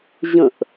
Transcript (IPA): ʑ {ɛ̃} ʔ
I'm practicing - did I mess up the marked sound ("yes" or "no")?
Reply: yes